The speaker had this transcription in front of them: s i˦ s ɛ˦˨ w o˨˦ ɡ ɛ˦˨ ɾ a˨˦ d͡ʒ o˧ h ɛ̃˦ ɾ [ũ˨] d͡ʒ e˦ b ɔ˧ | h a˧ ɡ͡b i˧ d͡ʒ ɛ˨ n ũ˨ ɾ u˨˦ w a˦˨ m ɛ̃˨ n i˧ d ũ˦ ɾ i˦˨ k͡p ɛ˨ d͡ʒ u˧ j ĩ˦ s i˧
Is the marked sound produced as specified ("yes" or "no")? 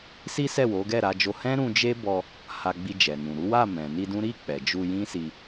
no